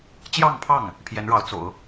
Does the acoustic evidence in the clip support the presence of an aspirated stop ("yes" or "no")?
yes